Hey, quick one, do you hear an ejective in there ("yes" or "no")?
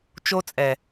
yes